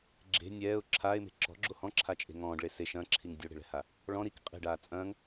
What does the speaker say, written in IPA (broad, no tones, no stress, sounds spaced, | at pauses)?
ɡ͡ǁ e̤ nʲ ɛː ʊ̯ ǁʰ aː ɪ̯ m e̤ ǁ ɔ̤ ɡ͡ǁ o h ɔ̃ ǁʰ a t͡ʃʼ e̤ ŋ ɔ̃ː ɖ ɭ e s e ʃ ɐ̃ː ǁʰ i ŋ dʲ o ɽ e̤ ɭ ɛ̤ h a | ɭ ɔ̃ ɾ i k qʼ e̤ ɖ aː t͡sʼ ɐ̃ː ŋ